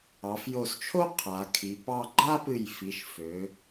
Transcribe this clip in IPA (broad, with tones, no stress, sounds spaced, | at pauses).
ɑ˩˧ f j o˧˩ s t͡ʃʰ o˥ qʰ a˩˧ kʰ i˩˧ p ɑ˥˧ ɡ͡ǃ a˥ p ɨ˧˩ j f i˩˧ ʃ f ø˩˧